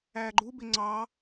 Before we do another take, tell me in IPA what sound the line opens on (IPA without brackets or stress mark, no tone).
æ